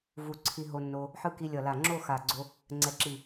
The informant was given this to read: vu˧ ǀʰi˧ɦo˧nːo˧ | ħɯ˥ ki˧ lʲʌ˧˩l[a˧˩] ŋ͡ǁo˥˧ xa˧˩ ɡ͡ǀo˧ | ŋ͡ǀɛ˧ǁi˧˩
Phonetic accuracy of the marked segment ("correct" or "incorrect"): correct